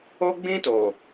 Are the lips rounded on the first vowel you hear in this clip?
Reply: yes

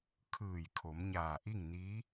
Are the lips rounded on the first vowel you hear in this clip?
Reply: no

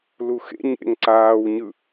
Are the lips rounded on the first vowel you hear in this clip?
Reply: yes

